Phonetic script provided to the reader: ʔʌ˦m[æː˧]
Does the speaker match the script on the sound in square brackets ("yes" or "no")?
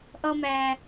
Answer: yes